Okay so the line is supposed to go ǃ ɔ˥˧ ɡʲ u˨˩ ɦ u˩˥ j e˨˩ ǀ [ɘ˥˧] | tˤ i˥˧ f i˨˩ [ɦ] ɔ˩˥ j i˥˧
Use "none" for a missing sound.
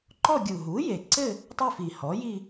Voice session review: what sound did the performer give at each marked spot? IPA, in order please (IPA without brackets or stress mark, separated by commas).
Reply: ɘ˥˧, h